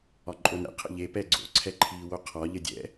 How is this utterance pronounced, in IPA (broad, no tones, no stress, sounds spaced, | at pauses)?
ɒ ǃʼ o n ɛ̰ qʰ ə̰ ʎ e p ɛ ɡ͡ǀ o̰ ǀʰ ɛ ǃʰ iː w o qʰ ɒ ʎ ə dʲ ɛ̰